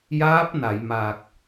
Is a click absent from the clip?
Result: yes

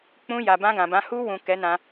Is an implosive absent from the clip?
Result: yes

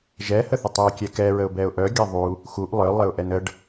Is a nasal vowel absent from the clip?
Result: yes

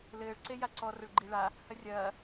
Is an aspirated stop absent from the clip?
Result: yes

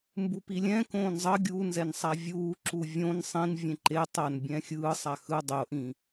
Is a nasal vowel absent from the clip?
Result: no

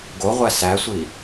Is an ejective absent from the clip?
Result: yes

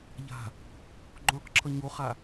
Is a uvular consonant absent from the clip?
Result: no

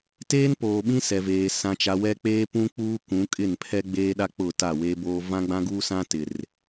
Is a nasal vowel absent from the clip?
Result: no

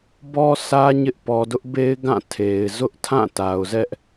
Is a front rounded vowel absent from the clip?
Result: yes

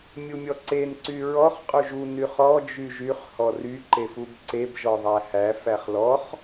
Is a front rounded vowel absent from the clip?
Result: no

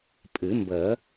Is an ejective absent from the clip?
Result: no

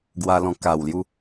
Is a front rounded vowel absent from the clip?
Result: yes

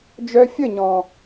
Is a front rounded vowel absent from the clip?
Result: no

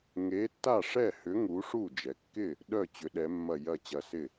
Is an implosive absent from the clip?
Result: no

